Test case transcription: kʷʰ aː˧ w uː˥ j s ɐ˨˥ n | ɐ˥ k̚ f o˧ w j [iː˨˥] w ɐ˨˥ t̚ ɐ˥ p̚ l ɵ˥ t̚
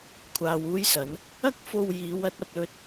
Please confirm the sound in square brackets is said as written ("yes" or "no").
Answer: no